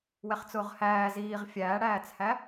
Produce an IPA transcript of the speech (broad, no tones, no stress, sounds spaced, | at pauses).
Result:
w ɛ χ t͡s ʊː ʁ h æː z iː ʁ fʲ æː ɽ æː t͡s h æ